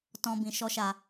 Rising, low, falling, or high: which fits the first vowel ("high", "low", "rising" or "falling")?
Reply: high